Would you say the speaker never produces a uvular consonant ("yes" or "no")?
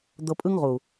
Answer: no